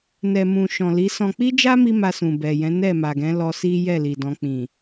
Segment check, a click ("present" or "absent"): absent